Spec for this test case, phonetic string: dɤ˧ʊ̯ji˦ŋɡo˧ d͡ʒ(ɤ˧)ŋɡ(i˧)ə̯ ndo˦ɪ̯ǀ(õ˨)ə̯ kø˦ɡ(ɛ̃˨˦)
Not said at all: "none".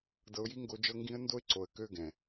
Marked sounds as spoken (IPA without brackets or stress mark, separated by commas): ɤ˧, ĩ˧, o˨, ɛ̃˨